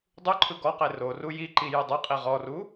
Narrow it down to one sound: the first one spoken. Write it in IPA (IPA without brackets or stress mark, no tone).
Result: dˤ